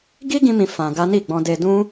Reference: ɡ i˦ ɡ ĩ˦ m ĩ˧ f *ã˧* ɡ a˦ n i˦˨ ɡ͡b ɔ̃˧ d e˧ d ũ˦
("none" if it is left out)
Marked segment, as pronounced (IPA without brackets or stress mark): ã˧